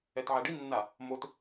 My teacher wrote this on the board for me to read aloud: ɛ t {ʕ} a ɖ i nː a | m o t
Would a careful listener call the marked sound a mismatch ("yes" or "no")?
no